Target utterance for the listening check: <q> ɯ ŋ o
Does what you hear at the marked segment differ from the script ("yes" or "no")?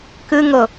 yes